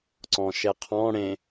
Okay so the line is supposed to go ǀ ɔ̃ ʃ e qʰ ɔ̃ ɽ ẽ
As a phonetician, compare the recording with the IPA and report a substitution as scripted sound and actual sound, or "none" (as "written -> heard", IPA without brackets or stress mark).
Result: none